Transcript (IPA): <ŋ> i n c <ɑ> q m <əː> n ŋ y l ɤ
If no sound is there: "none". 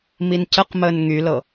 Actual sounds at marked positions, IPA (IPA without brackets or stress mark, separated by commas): m, ə, əː